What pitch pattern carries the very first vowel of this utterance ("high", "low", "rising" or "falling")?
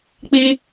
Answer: high